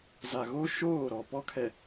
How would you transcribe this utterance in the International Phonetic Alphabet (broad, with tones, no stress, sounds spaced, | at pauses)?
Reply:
z a˨ ɣ o˦ ʃ oː˦˨ ɾ ɔ˨ p ɔ˦ kʰ ɛ˨